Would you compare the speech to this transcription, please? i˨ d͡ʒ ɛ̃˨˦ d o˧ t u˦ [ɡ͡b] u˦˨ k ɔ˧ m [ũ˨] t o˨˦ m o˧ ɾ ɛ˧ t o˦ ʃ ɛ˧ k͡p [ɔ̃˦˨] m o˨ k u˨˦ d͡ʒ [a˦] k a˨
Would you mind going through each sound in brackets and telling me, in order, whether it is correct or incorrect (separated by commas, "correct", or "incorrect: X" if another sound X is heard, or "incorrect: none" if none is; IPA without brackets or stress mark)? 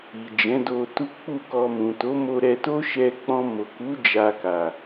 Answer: incorrect: k͡p, correct, incorrect: ɔ̃˧, incorrect: a˧